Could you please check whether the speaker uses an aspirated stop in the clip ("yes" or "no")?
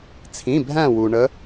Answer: yes